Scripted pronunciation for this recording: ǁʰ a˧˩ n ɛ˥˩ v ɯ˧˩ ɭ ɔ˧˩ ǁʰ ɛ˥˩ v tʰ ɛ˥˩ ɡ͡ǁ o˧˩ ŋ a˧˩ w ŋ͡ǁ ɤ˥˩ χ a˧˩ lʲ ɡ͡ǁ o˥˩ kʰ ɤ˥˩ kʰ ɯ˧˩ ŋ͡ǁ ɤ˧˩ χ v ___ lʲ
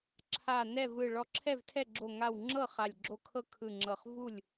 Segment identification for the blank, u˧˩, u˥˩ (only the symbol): u˥˩